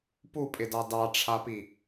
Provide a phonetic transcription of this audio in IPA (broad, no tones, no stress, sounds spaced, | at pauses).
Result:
p u pʼ ɪ d ɑ d ɑ ʈ͡ʂʰ a p i